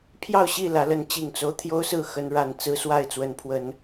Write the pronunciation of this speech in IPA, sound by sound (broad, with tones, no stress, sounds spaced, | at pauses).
pʰ j ɑ˥˨ ʊ̯ ɕ i˥˨ l ä˨˦ l ə˨˦ n t͡ɕ i˨˩ ŋ t͡s o˦ ʊ̯ t̪ʰ j o˦ ʊ̯ s ɹ̩˥˨ x ə˨˦ n ɻ a˨˩ n t͡s ɹ̩˦ s w a˥˨ ɪ̯ t͡s w ə˨˦ n pʰ w ə˨˦ n